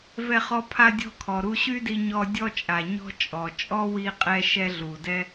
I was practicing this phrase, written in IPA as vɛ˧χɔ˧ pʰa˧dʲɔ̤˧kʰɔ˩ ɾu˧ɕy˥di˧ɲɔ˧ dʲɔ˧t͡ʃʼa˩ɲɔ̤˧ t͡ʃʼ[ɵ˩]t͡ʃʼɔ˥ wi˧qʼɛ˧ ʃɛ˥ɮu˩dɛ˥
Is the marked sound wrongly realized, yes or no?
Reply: yes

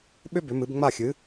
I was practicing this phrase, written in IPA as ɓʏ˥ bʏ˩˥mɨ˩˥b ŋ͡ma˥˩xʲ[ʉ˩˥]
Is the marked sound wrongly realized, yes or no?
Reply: yes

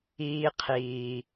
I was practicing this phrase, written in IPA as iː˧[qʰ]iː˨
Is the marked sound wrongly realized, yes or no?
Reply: no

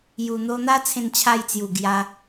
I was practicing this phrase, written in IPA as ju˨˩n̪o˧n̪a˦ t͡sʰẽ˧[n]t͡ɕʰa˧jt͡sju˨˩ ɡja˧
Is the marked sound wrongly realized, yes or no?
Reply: no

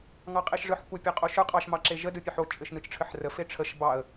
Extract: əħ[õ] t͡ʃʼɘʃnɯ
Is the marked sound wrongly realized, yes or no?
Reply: yes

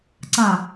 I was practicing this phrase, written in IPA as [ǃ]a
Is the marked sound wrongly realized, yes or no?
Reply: yes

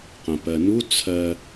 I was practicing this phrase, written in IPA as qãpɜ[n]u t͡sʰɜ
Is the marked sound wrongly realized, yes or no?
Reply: no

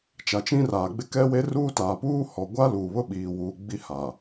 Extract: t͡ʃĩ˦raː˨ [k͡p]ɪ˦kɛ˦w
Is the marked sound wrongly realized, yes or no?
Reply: yes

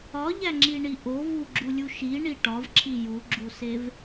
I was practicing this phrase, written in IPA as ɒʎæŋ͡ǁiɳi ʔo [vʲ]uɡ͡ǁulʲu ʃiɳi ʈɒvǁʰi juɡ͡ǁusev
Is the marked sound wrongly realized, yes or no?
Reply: yes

